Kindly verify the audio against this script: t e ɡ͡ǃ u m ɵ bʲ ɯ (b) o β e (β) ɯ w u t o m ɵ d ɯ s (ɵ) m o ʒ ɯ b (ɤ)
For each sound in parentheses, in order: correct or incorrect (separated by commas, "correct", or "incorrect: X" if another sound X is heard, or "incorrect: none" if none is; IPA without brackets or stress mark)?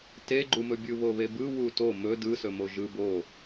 incorrect: β, incorrect: b, correct, incorrect: o